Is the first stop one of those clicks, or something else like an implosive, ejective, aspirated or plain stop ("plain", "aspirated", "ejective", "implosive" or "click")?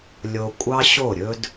ejective